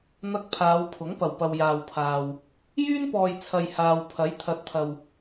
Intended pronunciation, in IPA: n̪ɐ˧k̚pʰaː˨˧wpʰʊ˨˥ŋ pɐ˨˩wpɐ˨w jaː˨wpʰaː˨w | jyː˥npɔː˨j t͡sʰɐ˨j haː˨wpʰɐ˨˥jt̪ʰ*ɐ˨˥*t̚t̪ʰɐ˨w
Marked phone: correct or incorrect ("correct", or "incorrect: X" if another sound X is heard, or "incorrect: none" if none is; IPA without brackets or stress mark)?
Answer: correct